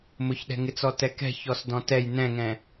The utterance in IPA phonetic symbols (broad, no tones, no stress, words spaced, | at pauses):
mʊçɗɛ̤ŋɪt͡sɔ tɛkɛ̤çɔs dɔ̃tɛj nɛ̃ŋɛ̃